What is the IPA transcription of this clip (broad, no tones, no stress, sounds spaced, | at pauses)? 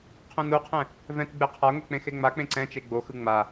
qʰ ũ n u qʰ ɛ̃ | v ɛ̃ t ɡ͡b e qʰ a ŋʷ ɛ k͡p ẽ x e ŋ͡m a k͡p ẽ ǀ ɛ̃ t͡ʃ e ɡ͡b o x ɯ ŋ͡m a